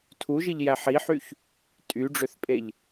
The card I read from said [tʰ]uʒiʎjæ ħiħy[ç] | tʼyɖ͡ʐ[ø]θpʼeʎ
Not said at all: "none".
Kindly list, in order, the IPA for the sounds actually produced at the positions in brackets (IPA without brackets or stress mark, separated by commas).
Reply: tʰ, ç, ø